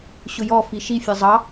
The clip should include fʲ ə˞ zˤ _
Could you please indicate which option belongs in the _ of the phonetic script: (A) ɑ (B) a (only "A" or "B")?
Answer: A